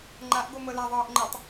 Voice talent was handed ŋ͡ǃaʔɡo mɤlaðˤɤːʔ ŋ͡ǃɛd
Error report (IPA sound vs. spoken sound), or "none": d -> tˤ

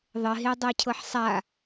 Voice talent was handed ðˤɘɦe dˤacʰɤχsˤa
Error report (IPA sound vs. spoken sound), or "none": χ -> ħ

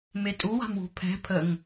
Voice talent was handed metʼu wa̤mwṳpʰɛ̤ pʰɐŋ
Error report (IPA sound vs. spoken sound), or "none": ɐ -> ə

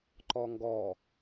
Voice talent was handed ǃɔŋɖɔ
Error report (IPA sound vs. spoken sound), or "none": ɖ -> ɡ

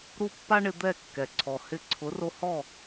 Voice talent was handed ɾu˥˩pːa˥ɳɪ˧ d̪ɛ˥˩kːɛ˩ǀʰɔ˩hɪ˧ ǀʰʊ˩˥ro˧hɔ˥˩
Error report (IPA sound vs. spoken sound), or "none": none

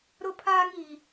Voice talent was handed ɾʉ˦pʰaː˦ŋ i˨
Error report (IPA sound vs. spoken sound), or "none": ʉ˦ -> ʊ˦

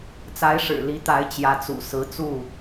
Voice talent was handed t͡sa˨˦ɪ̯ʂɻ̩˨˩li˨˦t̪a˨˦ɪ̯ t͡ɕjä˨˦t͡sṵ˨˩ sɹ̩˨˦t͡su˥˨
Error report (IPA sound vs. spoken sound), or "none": none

